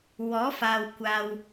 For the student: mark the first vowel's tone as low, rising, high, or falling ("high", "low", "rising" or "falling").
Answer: rising